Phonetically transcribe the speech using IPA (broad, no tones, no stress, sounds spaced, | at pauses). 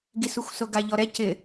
ɡ i s u xʷ s o ɡ a ʎ ɔ ɾ ɛ c ɪ